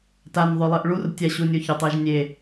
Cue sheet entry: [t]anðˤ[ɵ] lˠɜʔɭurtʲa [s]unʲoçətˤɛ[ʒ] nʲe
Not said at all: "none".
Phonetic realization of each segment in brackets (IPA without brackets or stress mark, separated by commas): t, ɵ, ɕ, ʒ